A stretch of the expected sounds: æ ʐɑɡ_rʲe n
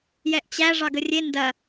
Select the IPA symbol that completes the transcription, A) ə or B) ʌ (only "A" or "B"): A